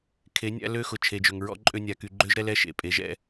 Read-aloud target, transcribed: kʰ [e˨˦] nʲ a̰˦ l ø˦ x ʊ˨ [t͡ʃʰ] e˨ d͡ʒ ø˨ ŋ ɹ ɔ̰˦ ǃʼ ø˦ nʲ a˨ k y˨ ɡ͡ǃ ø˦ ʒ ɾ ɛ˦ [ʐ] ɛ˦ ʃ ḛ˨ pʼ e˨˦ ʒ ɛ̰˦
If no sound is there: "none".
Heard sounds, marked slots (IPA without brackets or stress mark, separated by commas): e˨˦, t͡ʃʰ, l